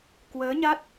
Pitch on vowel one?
rising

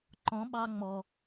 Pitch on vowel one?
rising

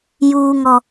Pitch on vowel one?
low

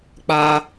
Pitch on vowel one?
high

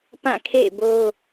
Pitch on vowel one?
falling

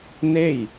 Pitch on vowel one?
falling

